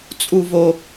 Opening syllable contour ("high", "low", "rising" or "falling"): high